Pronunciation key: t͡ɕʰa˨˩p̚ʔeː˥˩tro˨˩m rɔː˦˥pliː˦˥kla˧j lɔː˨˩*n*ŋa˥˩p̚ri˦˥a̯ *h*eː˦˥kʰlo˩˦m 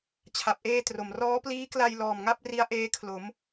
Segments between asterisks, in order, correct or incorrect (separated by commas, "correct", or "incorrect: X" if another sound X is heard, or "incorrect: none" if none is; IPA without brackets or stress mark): incorrect: m, incorrect: ʔ